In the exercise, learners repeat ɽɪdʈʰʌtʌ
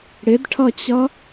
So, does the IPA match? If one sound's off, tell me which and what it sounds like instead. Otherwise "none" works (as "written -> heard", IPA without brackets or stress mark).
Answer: t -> t͡ɕ